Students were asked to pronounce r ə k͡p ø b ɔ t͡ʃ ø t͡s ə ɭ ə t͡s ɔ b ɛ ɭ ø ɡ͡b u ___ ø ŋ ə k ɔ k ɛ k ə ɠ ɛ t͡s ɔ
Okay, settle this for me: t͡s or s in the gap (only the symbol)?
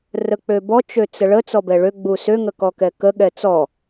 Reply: s